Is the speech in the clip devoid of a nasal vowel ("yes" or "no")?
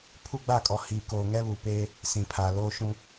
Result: no